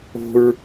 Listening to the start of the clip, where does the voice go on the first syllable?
high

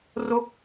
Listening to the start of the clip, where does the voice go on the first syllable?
falling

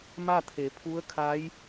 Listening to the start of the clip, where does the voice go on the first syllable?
falling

